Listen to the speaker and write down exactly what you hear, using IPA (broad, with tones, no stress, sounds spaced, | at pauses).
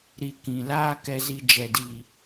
ɾ i˨ k ĩ˨ l aː˦ k ɛ˧ z i˧ d͡ʒ ɛ˨ d iː˨